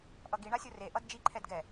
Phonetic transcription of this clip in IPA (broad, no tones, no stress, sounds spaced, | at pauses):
ʔ ʌ ɡ i ɳ a sʲ o r e ʔ ʌ d d͡ʒ i ǃʰ ɛ d ɡ ɛ